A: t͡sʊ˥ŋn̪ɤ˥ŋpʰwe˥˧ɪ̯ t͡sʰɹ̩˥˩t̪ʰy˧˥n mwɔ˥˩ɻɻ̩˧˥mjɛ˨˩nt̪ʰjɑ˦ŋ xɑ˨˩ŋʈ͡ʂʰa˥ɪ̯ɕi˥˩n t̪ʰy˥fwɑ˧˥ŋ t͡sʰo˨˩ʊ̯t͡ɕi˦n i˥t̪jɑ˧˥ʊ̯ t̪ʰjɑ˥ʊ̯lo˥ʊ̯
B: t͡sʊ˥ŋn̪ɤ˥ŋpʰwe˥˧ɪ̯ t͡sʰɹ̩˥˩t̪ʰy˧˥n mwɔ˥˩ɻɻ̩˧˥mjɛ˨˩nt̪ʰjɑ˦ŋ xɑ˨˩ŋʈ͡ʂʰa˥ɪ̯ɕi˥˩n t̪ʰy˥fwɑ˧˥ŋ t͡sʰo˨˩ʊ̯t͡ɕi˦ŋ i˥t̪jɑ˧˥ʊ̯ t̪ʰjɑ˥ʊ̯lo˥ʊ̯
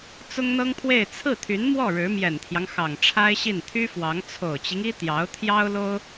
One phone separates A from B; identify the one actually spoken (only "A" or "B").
B